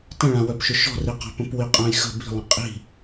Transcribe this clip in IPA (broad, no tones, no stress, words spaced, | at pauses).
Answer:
tə̃ɭãwœpʃʏ ʃɔ̤riqa̤pə̃p wiqʼãjxə̤ bi̤lˠə̃ qʼi̤